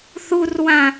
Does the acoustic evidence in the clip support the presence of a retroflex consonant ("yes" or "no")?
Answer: no